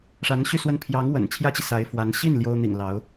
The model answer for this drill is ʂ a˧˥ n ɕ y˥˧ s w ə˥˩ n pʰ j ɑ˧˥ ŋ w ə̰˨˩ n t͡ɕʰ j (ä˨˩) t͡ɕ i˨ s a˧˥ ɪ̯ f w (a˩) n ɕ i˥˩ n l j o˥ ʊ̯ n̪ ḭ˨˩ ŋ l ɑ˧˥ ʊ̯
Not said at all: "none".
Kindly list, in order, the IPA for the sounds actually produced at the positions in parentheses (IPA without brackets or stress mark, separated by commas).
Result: ä˥, a˧˥